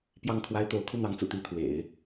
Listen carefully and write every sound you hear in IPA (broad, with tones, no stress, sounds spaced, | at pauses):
p j ɑ˥˩ ŋ kʰ w a˥ ɪ̯ t̪ o˧˥ ʊ̯ kʰ u˥˩ n̪ ɑ˧˥ ŋ t͡s ṵ˨˩ t̪ i˥˩ t̪ʰ w ḛ˨˩˦ ɪ̯